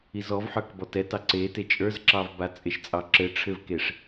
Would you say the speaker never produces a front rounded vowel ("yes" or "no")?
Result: yes